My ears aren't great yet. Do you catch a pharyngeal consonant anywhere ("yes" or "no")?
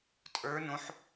yes